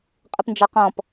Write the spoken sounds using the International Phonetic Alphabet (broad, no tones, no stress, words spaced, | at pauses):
qʼəpnd͡ʒɑqɔ̃p